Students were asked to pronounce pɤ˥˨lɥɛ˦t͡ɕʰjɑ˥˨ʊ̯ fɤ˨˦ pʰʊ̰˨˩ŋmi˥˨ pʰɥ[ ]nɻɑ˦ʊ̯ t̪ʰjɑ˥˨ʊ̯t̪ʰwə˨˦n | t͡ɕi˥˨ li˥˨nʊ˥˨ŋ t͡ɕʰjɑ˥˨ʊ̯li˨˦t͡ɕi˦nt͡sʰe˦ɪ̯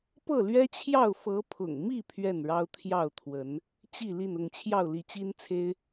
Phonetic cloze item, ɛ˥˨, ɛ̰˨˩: ɛ˥˨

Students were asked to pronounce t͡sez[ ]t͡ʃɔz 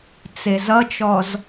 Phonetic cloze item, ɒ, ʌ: ʌ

